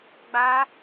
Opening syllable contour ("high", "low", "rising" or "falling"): high